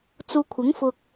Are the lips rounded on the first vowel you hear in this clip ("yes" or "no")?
yes